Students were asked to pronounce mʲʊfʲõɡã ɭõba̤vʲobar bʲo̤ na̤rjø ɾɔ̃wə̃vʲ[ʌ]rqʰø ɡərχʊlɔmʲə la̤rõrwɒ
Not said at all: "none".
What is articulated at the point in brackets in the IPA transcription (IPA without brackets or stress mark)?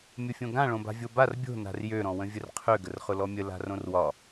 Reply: ə